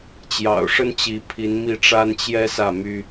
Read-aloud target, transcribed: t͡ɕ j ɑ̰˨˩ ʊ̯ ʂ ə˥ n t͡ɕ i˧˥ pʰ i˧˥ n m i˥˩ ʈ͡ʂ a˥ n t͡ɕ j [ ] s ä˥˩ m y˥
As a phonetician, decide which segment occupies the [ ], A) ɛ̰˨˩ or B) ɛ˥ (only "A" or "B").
B